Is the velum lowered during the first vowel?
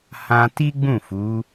yes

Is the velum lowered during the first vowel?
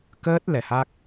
no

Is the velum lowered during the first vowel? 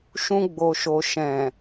yes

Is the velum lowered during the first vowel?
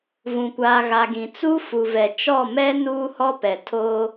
yes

